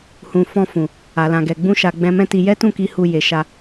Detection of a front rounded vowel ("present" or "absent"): absent